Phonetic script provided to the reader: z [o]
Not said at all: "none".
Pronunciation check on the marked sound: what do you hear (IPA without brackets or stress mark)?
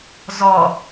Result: ɔ